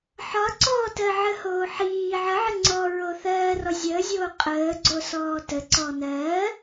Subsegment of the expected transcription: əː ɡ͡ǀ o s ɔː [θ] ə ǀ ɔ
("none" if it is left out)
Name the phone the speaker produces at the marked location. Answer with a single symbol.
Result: t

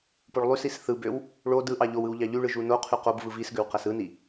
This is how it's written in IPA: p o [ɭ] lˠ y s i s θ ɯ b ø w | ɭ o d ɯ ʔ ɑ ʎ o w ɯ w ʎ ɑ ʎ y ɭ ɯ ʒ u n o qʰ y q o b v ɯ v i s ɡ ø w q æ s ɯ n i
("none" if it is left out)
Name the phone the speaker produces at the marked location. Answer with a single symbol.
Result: ɭ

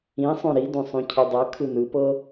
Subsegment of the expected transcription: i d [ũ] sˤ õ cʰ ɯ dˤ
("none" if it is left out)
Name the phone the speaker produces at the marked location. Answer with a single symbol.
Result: õ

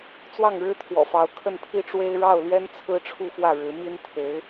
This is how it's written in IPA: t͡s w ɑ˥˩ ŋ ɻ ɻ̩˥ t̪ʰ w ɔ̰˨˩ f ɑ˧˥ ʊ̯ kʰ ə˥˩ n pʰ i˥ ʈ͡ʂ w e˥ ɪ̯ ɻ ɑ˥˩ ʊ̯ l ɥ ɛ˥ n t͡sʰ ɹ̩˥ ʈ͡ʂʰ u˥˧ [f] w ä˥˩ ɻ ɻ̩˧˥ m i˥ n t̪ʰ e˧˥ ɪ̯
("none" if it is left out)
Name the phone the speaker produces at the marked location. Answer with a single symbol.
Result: f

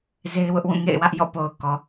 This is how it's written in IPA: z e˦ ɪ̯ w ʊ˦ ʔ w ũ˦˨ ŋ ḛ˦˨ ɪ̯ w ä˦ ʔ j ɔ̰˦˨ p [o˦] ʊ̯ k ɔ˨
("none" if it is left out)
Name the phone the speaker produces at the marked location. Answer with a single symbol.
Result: o˨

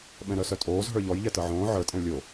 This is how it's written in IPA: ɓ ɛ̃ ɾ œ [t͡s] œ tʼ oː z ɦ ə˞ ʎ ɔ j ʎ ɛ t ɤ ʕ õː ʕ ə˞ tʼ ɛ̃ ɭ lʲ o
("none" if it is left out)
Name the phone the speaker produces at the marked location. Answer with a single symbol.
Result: s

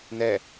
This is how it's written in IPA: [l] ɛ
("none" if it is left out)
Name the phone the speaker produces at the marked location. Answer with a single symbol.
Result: n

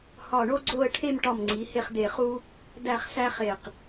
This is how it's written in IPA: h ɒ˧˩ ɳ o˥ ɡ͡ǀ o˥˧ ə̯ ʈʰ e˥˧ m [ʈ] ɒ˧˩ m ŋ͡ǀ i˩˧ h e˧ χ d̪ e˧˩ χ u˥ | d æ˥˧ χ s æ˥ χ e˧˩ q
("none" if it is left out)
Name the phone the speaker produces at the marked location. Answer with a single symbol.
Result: ʈ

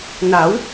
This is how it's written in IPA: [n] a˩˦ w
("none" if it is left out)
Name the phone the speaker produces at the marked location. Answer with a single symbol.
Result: n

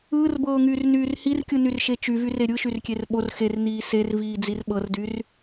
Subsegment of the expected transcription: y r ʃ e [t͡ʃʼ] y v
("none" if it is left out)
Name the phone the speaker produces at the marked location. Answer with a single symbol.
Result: t͡ʃ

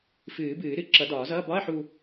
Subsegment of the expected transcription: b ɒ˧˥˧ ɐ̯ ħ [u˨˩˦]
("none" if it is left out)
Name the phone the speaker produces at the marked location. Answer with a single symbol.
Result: u˧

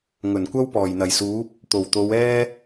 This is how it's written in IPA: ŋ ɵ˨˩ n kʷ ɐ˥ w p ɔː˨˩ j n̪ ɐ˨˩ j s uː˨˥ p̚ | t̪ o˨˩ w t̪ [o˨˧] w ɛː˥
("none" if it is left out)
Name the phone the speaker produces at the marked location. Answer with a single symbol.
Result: o˨˧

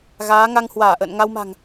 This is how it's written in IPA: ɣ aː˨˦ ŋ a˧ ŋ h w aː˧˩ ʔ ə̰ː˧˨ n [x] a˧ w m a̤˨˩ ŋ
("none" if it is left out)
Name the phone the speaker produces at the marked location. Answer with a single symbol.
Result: ŋ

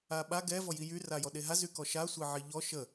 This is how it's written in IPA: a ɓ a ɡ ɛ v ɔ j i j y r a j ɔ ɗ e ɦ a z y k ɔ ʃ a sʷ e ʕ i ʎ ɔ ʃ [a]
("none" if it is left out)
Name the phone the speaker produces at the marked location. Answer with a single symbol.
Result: ə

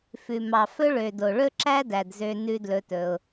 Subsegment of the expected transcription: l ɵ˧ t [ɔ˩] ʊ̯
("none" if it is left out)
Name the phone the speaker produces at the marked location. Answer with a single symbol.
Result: ɵ˩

